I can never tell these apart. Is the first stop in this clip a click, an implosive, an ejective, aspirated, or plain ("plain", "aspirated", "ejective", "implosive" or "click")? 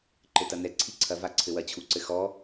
click